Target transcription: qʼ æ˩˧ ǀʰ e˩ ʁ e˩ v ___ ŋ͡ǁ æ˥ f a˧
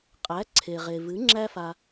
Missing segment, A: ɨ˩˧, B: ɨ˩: A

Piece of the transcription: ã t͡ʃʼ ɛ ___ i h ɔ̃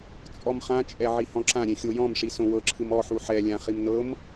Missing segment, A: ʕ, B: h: A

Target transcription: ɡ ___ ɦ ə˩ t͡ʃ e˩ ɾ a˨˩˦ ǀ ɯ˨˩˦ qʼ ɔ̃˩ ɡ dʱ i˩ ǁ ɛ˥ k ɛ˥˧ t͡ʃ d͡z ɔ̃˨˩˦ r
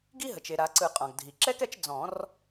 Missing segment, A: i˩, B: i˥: B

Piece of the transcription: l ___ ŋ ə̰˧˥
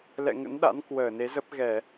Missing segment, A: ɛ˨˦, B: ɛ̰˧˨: B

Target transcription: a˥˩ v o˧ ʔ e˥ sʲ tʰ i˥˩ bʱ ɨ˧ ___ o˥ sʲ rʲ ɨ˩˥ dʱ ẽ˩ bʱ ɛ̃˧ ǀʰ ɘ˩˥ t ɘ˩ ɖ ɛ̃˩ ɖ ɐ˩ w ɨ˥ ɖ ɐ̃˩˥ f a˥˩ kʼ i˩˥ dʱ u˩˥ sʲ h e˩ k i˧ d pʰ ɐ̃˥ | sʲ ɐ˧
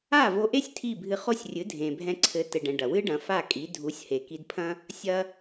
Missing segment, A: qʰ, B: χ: B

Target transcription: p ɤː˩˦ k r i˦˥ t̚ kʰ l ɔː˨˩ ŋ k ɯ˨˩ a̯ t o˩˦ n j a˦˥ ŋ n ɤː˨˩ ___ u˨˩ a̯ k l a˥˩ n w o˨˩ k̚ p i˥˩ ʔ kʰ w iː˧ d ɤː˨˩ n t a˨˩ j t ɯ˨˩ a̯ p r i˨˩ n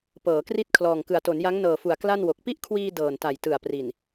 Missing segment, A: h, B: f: B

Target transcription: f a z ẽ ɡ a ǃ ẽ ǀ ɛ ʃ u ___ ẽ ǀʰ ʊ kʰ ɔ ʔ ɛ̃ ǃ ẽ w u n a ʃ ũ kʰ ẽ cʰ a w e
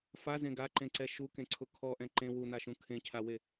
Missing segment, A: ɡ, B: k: B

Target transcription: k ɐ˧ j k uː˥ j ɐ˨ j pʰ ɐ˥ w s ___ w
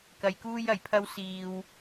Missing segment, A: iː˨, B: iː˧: B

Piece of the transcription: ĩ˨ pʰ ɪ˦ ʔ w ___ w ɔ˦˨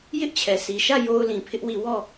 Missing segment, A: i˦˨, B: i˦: A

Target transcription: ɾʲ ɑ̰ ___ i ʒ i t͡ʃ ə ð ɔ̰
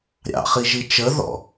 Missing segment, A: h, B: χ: B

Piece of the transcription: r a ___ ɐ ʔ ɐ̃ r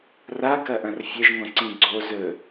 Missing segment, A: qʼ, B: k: B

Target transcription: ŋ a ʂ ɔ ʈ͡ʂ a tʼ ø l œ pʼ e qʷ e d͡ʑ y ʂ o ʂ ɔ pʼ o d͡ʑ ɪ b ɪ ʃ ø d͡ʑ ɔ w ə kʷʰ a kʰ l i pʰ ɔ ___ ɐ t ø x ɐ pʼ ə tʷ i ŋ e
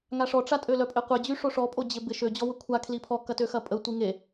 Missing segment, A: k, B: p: A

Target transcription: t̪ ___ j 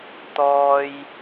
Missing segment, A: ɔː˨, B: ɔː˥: B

